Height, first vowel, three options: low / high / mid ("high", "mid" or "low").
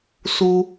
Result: high